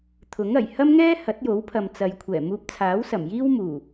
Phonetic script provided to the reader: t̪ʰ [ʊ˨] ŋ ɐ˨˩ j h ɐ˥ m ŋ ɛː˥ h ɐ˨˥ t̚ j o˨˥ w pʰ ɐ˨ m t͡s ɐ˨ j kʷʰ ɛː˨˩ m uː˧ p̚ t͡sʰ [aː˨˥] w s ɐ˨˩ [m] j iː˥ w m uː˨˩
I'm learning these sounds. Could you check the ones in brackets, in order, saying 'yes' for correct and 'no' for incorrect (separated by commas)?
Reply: no, yes, yes